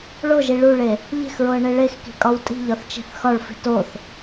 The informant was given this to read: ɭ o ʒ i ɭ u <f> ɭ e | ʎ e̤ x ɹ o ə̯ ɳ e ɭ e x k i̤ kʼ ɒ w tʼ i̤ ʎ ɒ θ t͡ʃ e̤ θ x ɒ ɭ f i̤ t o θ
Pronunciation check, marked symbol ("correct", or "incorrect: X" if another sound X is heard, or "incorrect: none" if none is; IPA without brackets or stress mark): incorrect: none